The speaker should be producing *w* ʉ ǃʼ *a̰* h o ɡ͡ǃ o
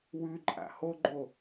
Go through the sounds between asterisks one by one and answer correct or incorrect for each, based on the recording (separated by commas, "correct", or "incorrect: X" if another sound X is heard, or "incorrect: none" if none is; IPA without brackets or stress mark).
correct, correct